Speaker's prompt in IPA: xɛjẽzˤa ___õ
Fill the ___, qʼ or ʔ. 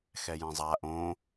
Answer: ʔ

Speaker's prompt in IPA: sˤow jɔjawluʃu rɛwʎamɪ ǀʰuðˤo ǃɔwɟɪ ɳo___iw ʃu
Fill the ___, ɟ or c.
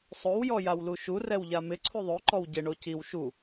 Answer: c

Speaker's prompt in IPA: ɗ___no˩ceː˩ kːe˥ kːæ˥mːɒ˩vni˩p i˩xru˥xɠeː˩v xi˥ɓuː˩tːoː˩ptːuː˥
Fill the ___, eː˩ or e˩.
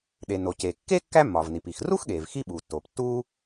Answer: e˩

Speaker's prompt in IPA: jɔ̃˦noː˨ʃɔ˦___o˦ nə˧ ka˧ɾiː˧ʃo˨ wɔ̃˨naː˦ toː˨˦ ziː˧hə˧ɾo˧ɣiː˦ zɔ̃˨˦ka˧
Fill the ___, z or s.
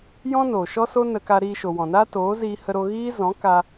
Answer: s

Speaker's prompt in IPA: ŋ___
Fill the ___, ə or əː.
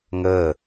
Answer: əː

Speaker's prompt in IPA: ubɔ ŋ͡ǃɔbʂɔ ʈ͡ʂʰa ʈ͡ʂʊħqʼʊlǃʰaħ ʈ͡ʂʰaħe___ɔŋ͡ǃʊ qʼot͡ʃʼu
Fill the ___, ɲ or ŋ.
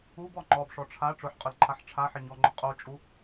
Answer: ɲ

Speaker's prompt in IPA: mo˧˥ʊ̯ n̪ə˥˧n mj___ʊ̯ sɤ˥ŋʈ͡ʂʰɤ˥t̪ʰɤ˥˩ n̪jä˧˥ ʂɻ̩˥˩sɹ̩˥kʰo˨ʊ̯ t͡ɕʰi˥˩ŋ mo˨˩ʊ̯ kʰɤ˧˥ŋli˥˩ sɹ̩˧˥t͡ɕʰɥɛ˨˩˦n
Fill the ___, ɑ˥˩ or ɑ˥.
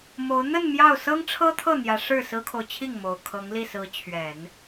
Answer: ɑ˥˩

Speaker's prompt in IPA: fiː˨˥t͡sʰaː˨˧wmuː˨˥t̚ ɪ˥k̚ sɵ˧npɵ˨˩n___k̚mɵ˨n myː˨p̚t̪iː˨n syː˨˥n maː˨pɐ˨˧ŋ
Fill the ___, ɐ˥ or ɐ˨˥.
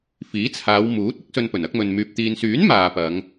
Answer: ɐ˨˥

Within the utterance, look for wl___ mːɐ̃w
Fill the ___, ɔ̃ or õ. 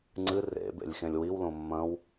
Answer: õ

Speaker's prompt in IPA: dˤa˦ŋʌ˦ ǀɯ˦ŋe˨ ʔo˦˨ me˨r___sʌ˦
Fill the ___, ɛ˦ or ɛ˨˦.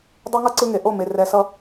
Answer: ɛ˨˦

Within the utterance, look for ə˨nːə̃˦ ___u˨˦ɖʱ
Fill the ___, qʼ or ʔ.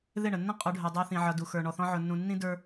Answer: qʼ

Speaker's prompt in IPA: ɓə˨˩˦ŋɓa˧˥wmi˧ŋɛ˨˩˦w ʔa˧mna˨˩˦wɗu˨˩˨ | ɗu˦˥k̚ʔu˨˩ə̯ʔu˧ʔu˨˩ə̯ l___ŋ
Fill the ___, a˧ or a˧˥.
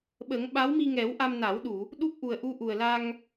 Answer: a˧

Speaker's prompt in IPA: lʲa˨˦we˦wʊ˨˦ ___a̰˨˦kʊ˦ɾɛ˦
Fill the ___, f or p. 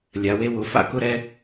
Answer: f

